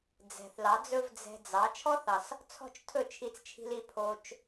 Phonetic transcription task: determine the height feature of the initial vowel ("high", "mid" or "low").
mid